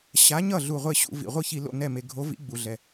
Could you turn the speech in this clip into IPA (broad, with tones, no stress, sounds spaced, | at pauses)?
ɕ a˨˥ ɲ ʌ˥˩ ɮ u˧˩ ʁʷ e˥˩ ɕ ṵ˧˩˧ v ḭ˩ ʁʷ ɯ˥˩ ç i˧˩˧ l o̰˧˩ n ɛ˧˩ m e˩ ɡʱ o˨˥ v ḭ˨˥ ɡ͡b u˩ ɮ ɛ˩